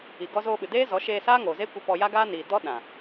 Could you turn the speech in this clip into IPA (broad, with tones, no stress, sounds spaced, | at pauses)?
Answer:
i˨ ɡ ɔ˧ z oː˧ ɓ ɨ˨ d eː˦ z ɔ˨˦ ʃ eː˧ s aː˦ ŋ oː˨ z e˦ kʷ i˧ p ɔ˧ j a˦ ɡ aː˦ n iː˨ d ɔ˦ ɗ ã˨